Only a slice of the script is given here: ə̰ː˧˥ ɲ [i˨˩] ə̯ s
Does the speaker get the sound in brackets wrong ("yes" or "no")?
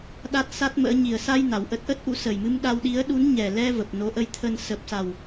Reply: no